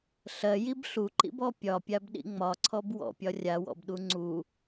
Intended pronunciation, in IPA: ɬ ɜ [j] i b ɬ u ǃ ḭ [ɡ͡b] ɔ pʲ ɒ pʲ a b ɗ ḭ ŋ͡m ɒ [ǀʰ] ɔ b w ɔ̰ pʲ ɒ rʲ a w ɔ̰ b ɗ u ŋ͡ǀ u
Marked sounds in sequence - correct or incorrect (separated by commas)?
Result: correct, incorrect, correct